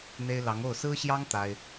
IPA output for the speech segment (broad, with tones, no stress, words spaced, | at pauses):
n̪e˥ɪ̯ lɑ˧˥ŋo˥˩ʊ̯ sɹ̩˥ɕjɑ˥ŋ t̪a˥ɪ̯